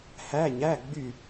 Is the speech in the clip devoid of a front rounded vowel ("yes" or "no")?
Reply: no